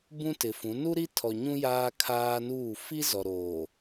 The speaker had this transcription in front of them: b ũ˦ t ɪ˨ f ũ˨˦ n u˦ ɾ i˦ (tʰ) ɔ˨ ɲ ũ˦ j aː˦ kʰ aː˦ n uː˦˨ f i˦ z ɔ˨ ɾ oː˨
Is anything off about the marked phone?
no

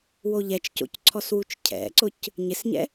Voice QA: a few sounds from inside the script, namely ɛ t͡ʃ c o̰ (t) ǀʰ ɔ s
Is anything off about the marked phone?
yes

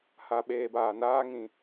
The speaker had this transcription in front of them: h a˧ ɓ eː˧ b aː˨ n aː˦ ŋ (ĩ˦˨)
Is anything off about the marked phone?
yes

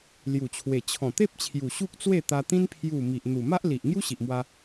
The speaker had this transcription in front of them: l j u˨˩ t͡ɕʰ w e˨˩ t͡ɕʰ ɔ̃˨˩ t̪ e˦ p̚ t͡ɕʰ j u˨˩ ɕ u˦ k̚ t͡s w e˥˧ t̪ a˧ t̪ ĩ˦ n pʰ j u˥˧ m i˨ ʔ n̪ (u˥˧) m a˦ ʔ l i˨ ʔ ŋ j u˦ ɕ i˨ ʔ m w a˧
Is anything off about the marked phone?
yes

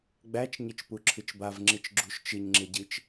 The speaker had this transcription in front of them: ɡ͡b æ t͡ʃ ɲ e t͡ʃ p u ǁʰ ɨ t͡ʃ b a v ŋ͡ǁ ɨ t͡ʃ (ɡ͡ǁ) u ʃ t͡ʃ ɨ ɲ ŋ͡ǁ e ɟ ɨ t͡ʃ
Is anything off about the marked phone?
no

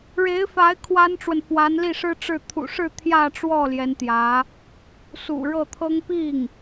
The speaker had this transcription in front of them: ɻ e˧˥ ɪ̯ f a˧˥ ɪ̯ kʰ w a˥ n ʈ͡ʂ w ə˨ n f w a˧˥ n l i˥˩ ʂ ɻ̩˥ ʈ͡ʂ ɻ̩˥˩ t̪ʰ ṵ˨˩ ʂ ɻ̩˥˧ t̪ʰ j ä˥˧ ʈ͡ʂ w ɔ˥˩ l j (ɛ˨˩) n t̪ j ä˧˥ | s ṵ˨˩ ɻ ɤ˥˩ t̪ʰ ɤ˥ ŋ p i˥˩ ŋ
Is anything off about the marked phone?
yes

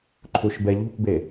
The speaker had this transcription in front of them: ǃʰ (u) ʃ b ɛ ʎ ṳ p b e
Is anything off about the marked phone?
no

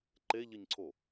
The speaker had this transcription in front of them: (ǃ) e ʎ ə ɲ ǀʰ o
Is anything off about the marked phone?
no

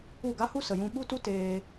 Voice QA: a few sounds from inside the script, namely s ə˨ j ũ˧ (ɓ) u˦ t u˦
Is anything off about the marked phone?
no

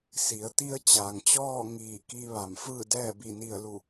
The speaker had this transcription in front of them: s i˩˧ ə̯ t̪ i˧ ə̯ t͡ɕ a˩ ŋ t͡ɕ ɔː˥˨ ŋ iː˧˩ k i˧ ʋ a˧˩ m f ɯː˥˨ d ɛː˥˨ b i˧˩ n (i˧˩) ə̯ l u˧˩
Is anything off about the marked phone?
no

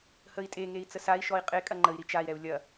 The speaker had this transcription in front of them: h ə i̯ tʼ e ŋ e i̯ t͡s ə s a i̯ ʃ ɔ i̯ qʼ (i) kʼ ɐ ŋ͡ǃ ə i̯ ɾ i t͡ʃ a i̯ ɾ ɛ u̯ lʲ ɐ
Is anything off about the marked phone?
yes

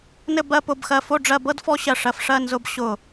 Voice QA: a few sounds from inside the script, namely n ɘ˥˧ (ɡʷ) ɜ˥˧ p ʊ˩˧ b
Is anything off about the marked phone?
yes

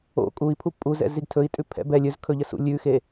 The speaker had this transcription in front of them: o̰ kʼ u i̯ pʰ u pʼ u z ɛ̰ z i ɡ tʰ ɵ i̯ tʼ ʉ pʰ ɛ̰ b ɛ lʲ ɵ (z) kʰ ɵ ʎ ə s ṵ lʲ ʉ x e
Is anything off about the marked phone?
no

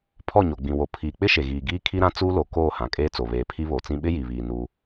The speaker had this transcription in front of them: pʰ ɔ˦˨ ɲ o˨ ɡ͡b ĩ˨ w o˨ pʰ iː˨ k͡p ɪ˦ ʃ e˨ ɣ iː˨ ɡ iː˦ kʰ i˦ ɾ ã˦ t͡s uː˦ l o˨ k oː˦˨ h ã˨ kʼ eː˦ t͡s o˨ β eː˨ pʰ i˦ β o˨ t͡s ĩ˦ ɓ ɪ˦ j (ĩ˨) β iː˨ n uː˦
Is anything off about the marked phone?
yes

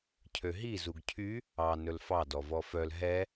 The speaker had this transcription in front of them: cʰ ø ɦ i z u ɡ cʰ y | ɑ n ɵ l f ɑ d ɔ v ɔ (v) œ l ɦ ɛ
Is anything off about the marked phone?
yes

